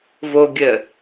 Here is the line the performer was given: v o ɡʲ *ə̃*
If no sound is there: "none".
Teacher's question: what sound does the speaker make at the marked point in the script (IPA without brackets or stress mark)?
ə